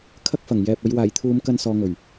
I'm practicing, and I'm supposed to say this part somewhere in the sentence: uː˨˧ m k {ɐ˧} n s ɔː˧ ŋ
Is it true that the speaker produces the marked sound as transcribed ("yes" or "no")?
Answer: yes